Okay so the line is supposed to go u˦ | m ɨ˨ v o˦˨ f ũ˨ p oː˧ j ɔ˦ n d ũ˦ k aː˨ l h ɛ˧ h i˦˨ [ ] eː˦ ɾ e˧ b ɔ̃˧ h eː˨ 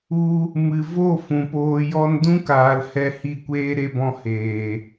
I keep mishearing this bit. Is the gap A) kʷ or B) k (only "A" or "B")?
A